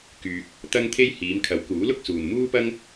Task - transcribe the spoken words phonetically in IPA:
k yː˧ k̚ | t̪ ɐ˥ ŋ t̪ʰ e˥ j h iː˨˧ m kʰ ɐ˨˥ w k uː˨˥ l ʊ˥ k̚ s uː˨ n m uː˥ p ɐ˥ ŋ

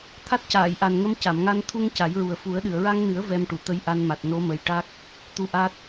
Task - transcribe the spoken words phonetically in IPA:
t̪ʰ a˦˥ t̚ c aː˨˩˨ j ʔ a˨˩ n ŋ ə˧˥ m c a˨˩˨ m ŋ a˧ n t̪ʰ u˧ ŋ c a˨˩˦ j ɹ u˨˩ ə̯ f u˨˩˦ ə̯ ɗ ɨ˨˩˨ ə̯ ɹ a˧ ŋ n ɨ˨˩˦ ə̯ v ɛ˧ m ʈ u˨˩˨ t̪ ə˧˥ j ʔ a˧ n m a˨˩ t̚ n o˧˥ m ə˨˩ j ʈ a˦˥ k̚ | t̪ u˧ ʔ a˦˥ t̚

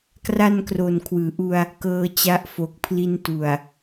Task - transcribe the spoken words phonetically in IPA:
k r a˥˩ n k r o˨˩ n kʰ w ɯː˩˦ ʔ u˧ a̯ | k ɤː˧ t͡ɕ a˦˥ ʔ f o˨˩ k̚ pʰ l i˧ n t u˨˩ a̯

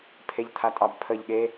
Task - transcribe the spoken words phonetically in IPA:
pʰ e ʎ t̪ʰ a tʼ ɑ b pʰ ə ʎ ɠ e

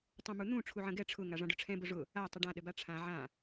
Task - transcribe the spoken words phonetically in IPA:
tˤ ũ m u n̪ ũ ʈ͡ʂʰ u ʕ ə̃ ɡ ɛ ʈ͡ʂʰ ʊ ŋ a ʐ ã ɖ ʊ ʈ͡ʂʰ ɛ̃ b ʊ ʐ ʊ | a tˤ ʊ ɖ ã ɗ ə b a ʈ͡ʂʰ ã ʕ ã

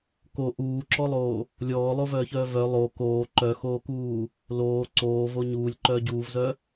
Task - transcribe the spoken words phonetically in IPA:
k o ʔ uː ǁ ɔ lˠ oː | lʲ ɔː lˠ o v œː ç œː v œ lˠ o k oː ǃ œ x oː k uː | l oː ǀ oː v o ɲ uː lʲ ǃ œː ɟ uː v z œ

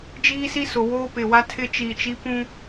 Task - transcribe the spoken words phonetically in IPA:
d͡ʒ iː˦ s i˦ s ʊ˨ w oː˦ p ɪ˨ w a˦ tʰ ɪ˦ t͡ʃ i˨ t͡ʃ i˦ p ũ˦

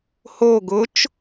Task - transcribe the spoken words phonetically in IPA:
h o ɡ ʊ t͡ʃ

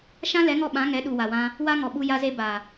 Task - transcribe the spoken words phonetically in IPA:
ʃ ã˦ l ɛ˨˦ ŋ ɔ˧ ɓ ã˨˦ ŋ ɛ˨˦ ɗ u˨ w a˨ w ã˧ | w a˦ ŋ ɔ˨ ɓ u˧ j a˧ z e˧ b a˨

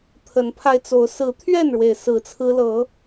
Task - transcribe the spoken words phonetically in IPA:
t̪ʰ ə˨˦ n pʰ a˧ ɪ̯ t͡s o˨˦ ʊ̯ s ɹ̩˨˦ t̪ʰ ɥ ɛ˥˨ n ɻ w e˩ ɪ̯ s ɹ̩˨˦ t͡sʰ ɹ̩˦ l ɤ˨˦

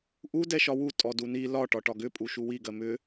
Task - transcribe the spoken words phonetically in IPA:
ʔ u d ɛ ʃ ɒ w u tʼ ɔ d u n i l ɒ ʈ ɒ ʈ ɒ ɡ ʏ pʼ u ʃ u w i ɡ ɜ m ʏ

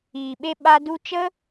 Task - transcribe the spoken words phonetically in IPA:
iː˨ ɓ e˧ ɓ a˧ d u˧ t͡ʃ ə˦

